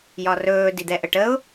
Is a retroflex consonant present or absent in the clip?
present